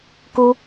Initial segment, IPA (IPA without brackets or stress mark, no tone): k